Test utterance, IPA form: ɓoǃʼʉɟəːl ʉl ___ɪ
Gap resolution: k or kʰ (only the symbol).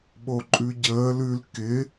k